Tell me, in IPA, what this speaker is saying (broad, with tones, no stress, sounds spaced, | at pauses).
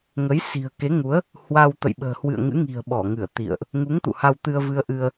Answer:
ŋ ə˨˦ j s i̤˨˩ ə̯ k e˨˦ ŋ u˨˦ ə̯ | h w a˧ w t̪ ə̰˧˨ j ɓ ə̤ː˨˩ h w ɨ̰˧˨ ə̯ ŋ ɨ̰˧˥ ŋ i̤˨˩ ə̯ ɓ ɔ˧˩ ŋ ɨ˧˩ ə̯ t̪ ḭ˧˨ ə̯ ʔ | ŋ u˨˦ ŋ t̪ ṵ˧˨ h a˧ w t̪ ɨ˧ ə̯ v ɨ˧ ə̯ ʔ ɨ˧ ə̯